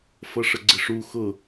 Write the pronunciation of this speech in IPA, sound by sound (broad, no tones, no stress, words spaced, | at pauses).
fʌʂəɡ͡ǀɪʂu xʊ